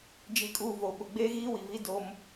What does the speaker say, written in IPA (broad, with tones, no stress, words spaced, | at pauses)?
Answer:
d͡ʒi˨kʼuː˨ vo˨ ɓʊ˨ɡ͡beː˦ ɣiː˦wi˨vi˦ do˦m